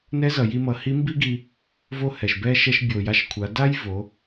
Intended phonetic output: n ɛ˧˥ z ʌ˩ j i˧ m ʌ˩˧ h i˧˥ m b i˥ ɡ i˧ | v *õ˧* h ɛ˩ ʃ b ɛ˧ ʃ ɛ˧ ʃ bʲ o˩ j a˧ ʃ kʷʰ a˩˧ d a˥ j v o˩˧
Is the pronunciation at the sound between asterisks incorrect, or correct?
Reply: incorrect